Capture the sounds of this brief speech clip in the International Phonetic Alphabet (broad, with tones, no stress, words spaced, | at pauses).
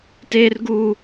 teː˦rɡuː˦